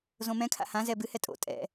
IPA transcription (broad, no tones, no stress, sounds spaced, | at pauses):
z õ m ɛ̃ kʰ a̰ h ã z ɛ b ɨ h ɛ tʼ o̰ tʼ ɛ̰